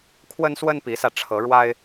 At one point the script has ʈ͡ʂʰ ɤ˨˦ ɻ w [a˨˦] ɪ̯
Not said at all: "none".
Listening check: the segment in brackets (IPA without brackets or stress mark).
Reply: a˦